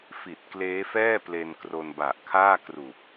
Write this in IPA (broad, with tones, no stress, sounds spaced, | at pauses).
f i˨˩ t̚ k l eː˦˥ f ɛː˥˩ p l e˧ n k r o˧ n b a˨˩ ʔ kʰ aː˥˩ k r u˨˩ k̚